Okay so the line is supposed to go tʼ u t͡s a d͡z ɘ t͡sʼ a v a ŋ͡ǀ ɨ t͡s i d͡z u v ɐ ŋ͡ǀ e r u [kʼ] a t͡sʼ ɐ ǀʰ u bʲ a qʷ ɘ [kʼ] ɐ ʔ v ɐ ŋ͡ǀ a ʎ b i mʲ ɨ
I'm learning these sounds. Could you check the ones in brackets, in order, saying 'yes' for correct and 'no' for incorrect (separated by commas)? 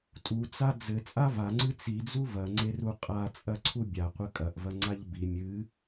no, yes